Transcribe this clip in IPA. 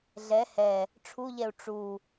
ɮ ɛ h ɛ | ʈ͡ʂʰ u ʎ ɛ u̯ ʈ͡ʂ u

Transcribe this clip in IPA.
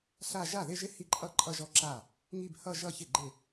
ɬ a˥˧ ʒ a˥˩ ð ɪ˥˧ ʒ ɪ˥˧ h i˥˧ ǃʼ ʌ˥˧ ǃʼ ʌ˥˧ ʒ ɔ˥˩ ǁ a˥˩ | ŋ i˥˧ b h ʌ˥˧ ʒ ʌ˥˧ ç ɪ˥˩ ɡ͡ǃ ɪ˥˩

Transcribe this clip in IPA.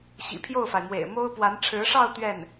ɕ ḭ˨˩ pʰ j o˥˩ ʊ̯ f a˩ ɪ̯ m w ḛ˨˩ ɪ̯ m o˥ ʊ̯ p w a˧˥ n ʈ͡ʂʰ ɻ̩˧˥ ʂ ɑ˥˧ ʊ̯ t̪ ɥ ɛ˥˩ n

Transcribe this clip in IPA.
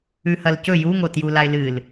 ʉ h ɐ l c ɵ j u ŋ o t j u l a ɪ̯ l ɨ l

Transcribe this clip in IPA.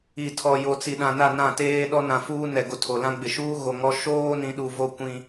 i˨ tʰ ɔ˨ j o˨ t͡s i˨ ɗ ã˨ n a˦˨ n ã˦˨ t eː˦ ɗ ɔ˦ n ã˨ f uː˦ n ɛ˨ ɡ o˨ tʰ o˨ l ã˦ ɡ͡b ɪ˨ ʃ uː˦ ɣ o˨ ŋ ɔ˦ ʃ oː˦ n ĩ˨˦ ɗ u˨ v o˦ kʷ ĩ˦

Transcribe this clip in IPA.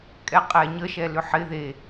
kʼ ɛ qʼ ɛ ɲ ə ʃ ɛ l ʏ ħ ɪ ð e

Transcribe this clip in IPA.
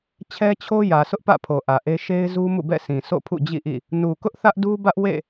t͡ɕʰ ɛ˦ t͡ɕʰ o˦ j ä˨ sʰ ʊ˦ ʔ p ä̰˦˨ pʰ o˨ ʔ ä˨ ʔ e˦ ʃ e˦ ɪ̯ z u˦ m ṵ˦˨ b ɛ̰˦˨ sʰ ĩ˨ sʰ o̰˦˨ pʰ ṵ˦˨ d͡ʑ ḭ˦˨ ʔ ḭ˦˨ | n u˨ k ʊ˦ ʔ θ ä˦ ʔ d u˦ b ä˦ ʔ w ḛ˦˨

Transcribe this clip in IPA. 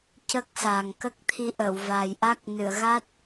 c ə˦˥ k̚ s a˨˩ ŋ k ə˦˥ k̚ t̪ʰ i˧˥ ʔ ə˨˩˨ w v a˨˩ j ʔ a˦˥ k̚ n ɨ˨˩˨ ə̯ ɣ a˦˥ t̚

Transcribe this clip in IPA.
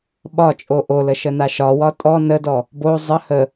ɓ ɒ t͡ʃʼ o ʔ o l ə ʃ ə n a ʃ ɒ w ɒ tʼ ɔ n ə d ɔ | b o zˤ ə h ə

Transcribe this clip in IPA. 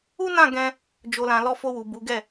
u˦ n ã˦˨ ɡ ɛ̃˧ | d͡ʒ o˨ l ã˨ l ɔ˧ f o˧ w u˨ b u˨˦ ɡ ɛ˦˨

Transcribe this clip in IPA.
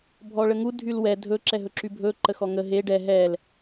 bʱ ɔ ɭ ə ŋ u dʱ y l w ɛ dʱ ɵ ǁ ɛ ɦ ɵ ǁ y bʱ ɵ ǃ ə x ɔ ŋ ə ɦ e ɖ ɛ ɦ ɛ l

